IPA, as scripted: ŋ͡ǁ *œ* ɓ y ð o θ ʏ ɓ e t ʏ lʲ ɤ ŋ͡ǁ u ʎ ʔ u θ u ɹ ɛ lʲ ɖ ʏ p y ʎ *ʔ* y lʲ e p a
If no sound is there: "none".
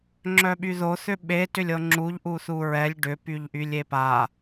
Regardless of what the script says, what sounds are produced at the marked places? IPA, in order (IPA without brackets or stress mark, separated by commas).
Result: œ, ʔ